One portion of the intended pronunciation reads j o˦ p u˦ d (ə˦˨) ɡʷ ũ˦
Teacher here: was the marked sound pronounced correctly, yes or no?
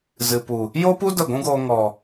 yes